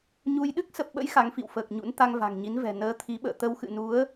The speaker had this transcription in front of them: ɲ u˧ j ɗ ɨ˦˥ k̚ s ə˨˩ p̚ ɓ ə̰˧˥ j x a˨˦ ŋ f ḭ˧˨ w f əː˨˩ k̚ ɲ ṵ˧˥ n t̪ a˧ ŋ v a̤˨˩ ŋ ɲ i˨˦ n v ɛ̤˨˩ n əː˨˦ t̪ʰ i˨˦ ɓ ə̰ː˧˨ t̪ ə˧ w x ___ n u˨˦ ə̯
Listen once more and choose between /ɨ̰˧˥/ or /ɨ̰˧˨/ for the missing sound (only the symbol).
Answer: ɨ̰˧˨